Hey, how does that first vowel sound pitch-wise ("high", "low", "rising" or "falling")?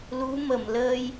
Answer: rising